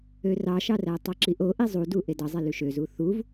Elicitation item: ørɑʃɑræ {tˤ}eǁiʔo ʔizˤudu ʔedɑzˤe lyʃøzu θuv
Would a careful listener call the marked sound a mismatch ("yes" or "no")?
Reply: no